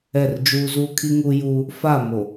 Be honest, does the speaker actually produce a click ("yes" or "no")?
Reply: no